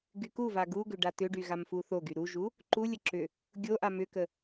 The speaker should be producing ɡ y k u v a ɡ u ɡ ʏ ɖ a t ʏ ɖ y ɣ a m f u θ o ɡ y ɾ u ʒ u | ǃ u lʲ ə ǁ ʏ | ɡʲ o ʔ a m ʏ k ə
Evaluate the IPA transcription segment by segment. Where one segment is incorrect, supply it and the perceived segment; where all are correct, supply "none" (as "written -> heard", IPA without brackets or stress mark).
none